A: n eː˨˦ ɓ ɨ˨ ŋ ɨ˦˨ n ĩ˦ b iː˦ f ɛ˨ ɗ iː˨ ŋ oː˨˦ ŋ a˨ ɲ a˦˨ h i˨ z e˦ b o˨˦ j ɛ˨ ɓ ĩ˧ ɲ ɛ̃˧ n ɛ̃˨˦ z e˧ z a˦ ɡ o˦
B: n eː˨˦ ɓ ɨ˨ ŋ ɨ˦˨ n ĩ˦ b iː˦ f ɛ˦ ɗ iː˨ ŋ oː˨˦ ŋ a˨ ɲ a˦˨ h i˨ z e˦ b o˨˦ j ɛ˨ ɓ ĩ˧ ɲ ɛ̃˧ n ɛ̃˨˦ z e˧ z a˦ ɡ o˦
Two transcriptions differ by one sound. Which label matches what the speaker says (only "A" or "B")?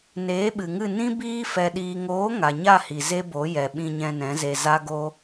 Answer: A